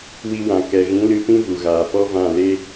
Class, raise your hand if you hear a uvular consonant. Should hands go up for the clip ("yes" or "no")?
no